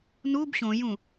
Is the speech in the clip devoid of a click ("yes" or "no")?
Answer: yes